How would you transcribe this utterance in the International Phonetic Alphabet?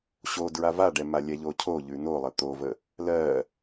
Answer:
ɕo dɹavaɖɛ malʲɛʎocʰo ʎʉnolˠə t̪ovə | lɜ

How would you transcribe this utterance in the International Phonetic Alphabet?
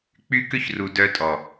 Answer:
k͡py˦kʏ˦çru˨ dœ˧tʼɔ˨

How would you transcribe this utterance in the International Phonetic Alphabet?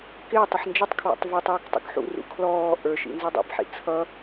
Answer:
kɪːtˤɪħ nd͡ʒɪtˤkʰwɔ̰tˤ və˞tˤjik tˤṵkħṵrṵ kʰlɔː ʔə˞ʃḭ nzidˤḭbħḭ t͡sʰʌ

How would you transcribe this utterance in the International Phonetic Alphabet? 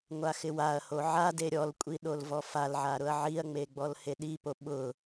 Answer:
ŋʷaxɪwaɐ̯ho ʕade ɾʲɔlkʷʼi ɗolvɔfalʕa ɾʊɐ̯ʕiɐ̯ŋ͡me ɡ͡bɔlheɗipo ɓʊ

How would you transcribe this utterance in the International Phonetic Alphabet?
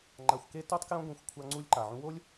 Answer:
ŋ͡ǃa˧xʷke˦ to˦tˤkjõ˦ɡʷẽ˧xʷ kʷʰa˧ ŋ͡ǀu˧lʲǃa˨ʕũ˧ wo˦lʲ

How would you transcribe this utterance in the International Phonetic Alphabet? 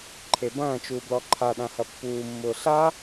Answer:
ǃʰebɐ̃ːt͡ʃuː blɔǃʰaɗã hɐpːuːmːʊː ɬa

